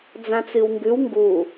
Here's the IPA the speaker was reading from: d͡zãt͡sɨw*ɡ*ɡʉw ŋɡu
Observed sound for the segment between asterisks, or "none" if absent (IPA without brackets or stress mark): ŋ